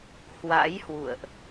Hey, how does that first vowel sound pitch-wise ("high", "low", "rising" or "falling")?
rising